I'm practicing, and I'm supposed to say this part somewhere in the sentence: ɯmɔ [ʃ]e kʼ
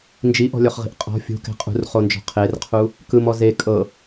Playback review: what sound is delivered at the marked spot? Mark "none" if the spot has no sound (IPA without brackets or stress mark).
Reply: z